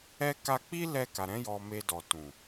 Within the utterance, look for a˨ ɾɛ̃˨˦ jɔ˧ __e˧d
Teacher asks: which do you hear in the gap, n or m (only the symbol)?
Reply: m